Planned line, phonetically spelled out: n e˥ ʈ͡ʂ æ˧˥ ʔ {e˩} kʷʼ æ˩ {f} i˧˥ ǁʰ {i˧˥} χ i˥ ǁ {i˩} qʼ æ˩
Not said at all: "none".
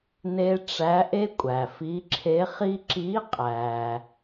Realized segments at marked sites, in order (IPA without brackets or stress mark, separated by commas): e˥, f, e˧˥, i˧˥